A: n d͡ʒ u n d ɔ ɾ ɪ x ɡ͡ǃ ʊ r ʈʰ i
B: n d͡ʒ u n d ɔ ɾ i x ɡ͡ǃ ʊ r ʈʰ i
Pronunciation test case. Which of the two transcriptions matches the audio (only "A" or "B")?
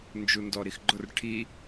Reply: B